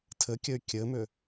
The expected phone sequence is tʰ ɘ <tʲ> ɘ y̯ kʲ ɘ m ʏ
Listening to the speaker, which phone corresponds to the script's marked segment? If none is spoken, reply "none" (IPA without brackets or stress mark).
kʲ